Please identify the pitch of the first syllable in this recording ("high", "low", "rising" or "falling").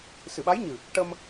low